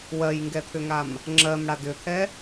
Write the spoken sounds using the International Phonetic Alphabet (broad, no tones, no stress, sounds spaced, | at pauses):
w ɜ j ŋ ɡ ɛ t̪ʰ ʏ ŋ a m | ŋ͡ǁ ɜ m ɽ a d ʏ t̪ʰ ɛ